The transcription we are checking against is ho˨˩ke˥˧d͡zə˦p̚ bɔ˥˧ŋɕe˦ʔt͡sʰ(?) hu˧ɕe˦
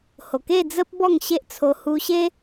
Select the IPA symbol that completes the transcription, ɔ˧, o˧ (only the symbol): o˧